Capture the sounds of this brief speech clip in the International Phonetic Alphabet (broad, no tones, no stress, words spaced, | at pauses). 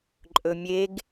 ǃʼɵmʲeɡ